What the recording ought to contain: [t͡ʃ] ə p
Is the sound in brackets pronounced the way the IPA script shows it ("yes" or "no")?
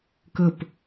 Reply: no